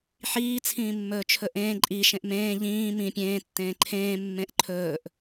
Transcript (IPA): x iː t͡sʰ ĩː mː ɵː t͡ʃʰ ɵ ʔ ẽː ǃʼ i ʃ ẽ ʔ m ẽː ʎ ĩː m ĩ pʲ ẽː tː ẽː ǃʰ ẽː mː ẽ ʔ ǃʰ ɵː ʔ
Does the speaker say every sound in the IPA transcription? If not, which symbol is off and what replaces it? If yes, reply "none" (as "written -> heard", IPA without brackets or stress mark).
x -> ħ